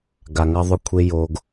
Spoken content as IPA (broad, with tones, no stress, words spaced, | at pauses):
ɡa˨ŋɐ˦ðˤɵ˦kʷʰe˦ jo˦ɡ